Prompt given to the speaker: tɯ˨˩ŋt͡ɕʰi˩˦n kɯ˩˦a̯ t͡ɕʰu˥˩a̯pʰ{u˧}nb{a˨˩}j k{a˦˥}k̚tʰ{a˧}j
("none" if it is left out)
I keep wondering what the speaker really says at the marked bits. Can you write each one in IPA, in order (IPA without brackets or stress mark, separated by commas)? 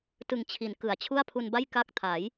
u˧, a˥˩, a˦˥, a˩˦